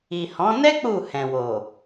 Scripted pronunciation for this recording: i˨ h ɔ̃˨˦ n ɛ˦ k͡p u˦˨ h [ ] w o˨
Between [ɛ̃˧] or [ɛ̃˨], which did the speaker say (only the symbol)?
ɛ̃˨